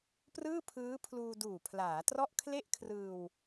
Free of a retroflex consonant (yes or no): yes